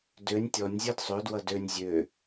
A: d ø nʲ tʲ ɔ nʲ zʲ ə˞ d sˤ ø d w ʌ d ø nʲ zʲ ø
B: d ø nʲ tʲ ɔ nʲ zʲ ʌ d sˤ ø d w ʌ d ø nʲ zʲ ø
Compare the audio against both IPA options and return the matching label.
A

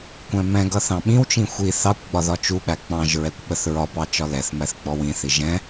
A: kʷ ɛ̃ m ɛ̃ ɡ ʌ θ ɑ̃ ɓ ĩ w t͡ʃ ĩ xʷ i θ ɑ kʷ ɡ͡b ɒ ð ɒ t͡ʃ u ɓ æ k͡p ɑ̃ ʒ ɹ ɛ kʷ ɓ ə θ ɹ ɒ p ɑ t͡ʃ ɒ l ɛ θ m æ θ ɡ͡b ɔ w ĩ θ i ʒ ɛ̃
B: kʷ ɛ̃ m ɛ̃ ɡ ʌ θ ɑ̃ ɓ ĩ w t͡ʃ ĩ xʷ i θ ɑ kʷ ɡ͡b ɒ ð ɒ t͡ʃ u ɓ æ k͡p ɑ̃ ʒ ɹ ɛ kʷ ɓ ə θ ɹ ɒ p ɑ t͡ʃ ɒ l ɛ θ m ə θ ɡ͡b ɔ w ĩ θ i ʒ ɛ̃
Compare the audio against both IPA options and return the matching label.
A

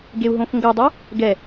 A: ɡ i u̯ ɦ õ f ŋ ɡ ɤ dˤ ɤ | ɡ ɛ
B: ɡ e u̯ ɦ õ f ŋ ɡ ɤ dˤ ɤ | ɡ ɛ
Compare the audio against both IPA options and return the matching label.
B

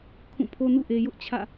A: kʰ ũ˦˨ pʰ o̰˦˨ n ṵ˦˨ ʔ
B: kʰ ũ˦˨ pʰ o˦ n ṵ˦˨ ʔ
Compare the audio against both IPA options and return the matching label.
B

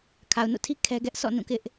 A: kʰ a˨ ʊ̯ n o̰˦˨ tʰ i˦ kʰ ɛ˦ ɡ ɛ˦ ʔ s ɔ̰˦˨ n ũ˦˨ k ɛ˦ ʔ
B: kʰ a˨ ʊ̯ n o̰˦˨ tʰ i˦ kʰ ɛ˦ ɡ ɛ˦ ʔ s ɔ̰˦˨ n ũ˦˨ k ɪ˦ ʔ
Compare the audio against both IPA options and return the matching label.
B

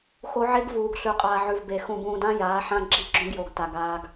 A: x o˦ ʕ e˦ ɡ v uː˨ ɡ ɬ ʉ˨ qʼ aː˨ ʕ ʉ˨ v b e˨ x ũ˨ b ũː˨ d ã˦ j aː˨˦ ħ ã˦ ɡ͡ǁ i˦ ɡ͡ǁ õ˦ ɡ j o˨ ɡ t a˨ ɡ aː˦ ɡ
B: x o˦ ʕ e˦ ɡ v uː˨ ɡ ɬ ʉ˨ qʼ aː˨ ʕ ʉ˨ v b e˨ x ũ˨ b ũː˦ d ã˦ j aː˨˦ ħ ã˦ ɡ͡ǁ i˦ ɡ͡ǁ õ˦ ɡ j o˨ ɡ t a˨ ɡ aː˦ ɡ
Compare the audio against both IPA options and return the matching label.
A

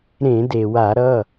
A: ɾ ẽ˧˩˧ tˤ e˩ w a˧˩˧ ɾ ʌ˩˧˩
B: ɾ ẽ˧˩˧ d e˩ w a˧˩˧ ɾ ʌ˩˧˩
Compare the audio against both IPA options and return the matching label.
B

